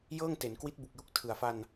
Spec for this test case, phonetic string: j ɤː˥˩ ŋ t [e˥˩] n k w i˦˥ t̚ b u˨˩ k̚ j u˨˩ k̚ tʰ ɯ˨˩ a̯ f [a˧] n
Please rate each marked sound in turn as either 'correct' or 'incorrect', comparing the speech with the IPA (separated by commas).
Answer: incorrect, correct